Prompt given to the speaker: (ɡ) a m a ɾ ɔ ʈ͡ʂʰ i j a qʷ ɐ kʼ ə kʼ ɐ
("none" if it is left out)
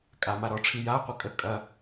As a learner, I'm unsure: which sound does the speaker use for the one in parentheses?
kʼ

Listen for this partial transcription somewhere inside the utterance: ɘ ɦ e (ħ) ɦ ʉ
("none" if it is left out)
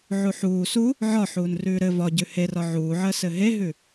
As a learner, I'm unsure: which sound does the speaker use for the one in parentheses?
none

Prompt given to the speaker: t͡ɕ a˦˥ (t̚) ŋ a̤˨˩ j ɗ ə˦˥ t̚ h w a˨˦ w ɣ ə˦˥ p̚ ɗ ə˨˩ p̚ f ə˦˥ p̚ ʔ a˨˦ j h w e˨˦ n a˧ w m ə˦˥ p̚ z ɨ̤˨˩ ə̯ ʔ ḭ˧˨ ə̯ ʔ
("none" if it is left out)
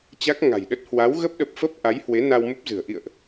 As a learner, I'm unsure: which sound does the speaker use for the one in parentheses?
k̚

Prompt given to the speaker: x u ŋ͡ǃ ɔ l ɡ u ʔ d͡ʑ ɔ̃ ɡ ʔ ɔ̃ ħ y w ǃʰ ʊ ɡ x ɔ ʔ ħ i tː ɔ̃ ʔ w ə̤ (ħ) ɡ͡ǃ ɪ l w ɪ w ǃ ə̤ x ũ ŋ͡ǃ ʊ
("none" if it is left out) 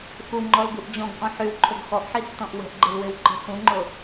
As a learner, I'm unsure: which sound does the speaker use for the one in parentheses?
ʔ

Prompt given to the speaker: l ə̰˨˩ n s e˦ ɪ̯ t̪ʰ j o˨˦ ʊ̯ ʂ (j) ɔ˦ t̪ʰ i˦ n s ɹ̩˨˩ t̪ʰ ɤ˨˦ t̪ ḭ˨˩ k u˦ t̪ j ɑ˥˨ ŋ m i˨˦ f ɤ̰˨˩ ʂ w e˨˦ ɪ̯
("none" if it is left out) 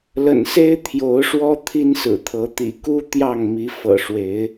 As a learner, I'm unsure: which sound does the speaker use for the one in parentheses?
w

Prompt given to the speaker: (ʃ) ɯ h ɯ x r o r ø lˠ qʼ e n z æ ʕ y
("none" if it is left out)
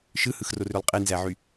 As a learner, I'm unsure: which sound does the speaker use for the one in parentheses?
ʃ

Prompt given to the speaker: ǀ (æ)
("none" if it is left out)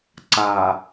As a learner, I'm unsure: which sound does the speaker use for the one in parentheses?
a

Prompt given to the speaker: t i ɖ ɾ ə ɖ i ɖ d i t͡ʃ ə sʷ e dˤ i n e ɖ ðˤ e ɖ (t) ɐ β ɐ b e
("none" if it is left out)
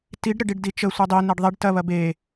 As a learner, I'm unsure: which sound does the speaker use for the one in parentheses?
t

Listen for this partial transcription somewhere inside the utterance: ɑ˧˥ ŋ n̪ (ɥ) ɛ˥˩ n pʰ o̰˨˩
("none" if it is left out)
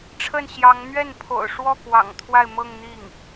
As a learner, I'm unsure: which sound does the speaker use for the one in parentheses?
ɥ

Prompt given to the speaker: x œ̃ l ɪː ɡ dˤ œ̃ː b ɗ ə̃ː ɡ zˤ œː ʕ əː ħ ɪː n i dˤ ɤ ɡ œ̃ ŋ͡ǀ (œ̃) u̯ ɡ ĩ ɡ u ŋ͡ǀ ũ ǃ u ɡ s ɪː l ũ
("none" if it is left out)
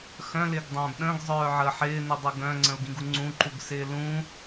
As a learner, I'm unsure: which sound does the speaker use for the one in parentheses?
ə̃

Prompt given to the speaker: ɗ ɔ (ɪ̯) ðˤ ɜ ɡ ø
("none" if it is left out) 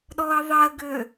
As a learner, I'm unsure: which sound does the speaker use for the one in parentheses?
ə̯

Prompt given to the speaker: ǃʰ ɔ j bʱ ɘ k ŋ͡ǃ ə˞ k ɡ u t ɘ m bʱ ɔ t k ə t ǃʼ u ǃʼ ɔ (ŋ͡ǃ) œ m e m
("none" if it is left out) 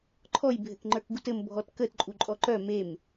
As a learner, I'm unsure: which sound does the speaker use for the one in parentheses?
ǃ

